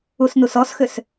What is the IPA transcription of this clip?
u s n u s ɔ s x ʏ s

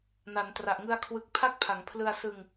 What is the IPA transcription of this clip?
n a˩˦ n t r a˨˩ ʔ ŋ ɯ˧ a̯ kʰ w ɯ˨˩ k̚ pʰ a˦˥ k̚ pʰ a˩˦ ŋ pʰ l ɯ˧ a̯ s ɯ˧ ŋ

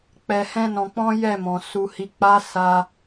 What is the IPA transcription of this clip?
k͡p ɛ˧ h ɛ̃˦ n ɔ̃˧ k͡p ɔ̃˦ j ɛ˦˨ m ɔ̃˨ s u˨ h i˨ k͡p a˨˦ s a˧

